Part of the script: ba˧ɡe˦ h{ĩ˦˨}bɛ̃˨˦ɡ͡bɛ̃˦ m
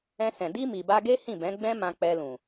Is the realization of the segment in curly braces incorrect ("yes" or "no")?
no